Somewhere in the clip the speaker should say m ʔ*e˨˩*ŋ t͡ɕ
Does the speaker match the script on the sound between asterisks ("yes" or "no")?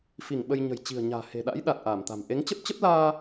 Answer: no